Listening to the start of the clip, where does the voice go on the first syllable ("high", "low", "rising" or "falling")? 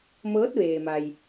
rising